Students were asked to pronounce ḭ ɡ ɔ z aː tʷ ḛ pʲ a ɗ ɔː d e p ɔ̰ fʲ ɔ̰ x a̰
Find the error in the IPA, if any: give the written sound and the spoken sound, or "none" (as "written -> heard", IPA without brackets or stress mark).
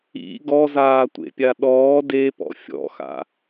none